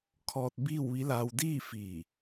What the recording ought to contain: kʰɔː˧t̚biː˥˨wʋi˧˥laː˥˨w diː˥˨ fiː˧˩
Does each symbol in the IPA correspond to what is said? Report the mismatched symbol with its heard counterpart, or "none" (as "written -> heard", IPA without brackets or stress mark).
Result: aː˥˨ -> aː˧